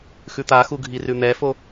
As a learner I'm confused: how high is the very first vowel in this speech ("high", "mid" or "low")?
high